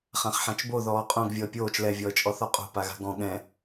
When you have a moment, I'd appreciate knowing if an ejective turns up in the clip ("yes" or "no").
yes